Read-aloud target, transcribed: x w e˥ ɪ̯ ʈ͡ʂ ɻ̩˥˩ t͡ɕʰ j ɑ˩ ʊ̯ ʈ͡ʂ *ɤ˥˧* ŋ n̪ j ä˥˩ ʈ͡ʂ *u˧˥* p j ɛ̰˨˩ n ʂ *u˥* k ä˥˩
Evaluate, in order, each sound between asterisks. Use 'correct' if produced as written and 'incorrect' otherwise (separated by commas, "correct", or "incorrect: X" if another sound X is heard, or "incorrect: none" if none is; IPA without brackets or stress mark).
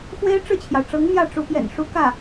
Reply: incorrect: ɤ˧˥, correct, correct